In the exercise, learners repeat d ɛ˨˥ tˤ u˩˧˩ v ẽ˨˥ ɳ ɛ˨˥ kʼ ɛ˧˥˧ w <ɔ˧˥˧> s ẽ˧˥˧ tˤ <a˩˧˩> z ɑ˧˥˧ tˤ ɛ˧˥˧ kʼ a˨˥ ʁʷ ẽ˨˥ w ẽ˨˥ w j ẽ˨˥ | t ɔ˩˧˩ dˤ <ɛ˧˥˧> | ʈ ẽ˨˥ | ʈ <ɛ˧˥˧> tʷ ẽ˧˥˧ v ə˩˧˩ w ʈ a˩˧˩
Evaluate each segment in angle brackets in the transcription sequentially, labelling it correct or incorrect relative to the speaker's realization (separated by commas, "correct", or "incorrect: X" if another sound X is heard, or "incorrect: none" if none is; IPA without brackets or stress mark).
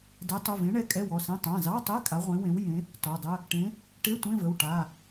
incorrect: ɔ˩˧˩, incorrect: ã˩˧˩, incorrect: ə˧˥˧, incorrect: e˧˥˧